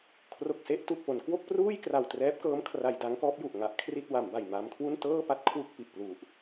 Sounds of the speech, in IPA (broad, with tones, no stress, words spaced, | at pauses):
kʰro˨˩k̚se˥˩ʔ tu˨˩k̚ po˩˦nkwo˥˩k̚pruː˥˩j kra˨˩wtrɛː˦˥p̚kɤː˦˥m kʰra˧jda˦˥ŋkɔː˦˥p̚ju˨˩ʔ ŋa˦˥ʔkʰri˥˩t̚ wa˩˦mba˨˩jma˧mkʰwu˥˩n tɤː˥˩pa˥˩t̚ kʰwu˥˩k̚pi˨˩ʔ plu˨˩ʔ